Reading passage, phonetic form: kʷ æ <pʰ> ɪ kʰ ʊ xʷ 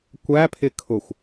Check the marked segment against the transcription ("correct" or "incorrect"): correct